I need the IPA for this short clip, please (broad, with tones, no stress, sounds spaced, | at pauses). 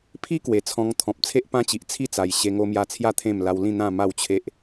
pʰ i˦ k w e˨˩ t͡sʰ ɔ̃˧ ŋ t̪ʰ ɔ̃˨ p̚ t͡sʰ e˦ ʔ p ã˦ t͡ɕ i˨ ʔ t͡sʰ i˥˧ t͡s a˨˩ j ɕ e˧ ŋ o˧ m j a˧ t͡sʰ j a˦ t̪ʰ ẽ˥˧ m l a˧ w l ĩ˥˧ n̪ ã˥˧ m a˥˧ w t͡ɕʰ e˦ ʔ